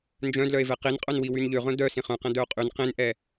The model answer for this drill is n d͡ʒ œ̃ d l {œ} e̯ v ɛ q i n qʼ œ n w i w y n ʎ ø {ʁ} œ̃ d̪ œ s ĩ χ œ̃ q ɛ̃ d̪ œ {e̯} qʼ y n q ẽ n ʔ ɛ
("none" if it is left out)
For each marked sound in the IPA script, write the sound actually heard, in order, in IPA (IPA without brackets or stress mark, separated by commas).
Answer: œ, ʁ, o̯